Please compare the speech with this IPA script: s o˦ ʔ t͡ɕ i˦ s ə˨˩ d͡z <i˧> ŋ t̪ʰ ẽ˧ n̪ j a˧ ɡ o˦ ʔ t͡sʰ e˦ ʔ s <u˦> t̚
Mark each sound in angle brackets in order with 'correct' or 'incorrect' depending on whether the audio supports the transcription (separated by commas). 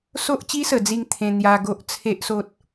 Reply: incorrect, incorrect